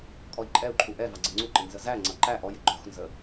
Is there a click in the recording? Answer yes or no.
yes